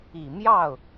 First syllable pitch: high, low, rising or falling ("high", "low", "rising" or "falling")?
low